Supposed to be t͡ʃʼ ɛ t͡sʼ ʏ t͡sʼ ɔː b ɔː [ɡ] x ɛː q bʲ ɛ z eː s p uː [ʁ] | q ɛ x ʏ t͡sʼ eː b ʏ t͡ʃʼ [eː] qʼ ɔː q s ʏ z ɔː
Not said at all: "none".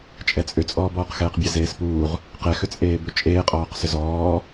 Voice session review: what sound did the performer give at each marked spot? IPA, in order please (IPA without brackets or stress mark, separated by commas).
q, ʁ, eː